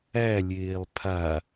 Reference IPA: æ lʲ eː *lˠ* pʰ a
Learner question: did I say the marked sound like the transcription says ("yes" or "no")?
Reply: yes